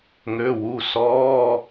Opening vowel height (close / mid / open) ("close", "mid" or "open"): mid